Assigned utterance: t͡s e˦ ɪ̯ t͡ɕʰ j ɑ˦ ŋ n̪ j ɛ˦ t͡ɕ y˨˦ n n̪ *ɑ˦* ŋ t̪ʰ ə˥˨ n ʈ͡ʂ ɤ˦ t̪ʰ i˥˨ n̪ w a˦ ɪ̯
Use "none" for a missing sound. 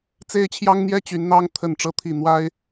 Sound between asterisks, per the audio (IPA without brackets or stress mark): ɑ˦